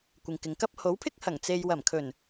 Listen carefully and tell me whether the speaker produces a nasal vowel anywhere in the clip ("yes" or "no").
no